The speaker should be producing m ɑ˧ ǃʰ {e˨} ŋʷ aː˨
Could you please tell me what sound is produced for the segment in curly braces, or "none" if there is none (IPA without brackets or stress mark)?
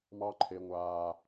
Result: e˨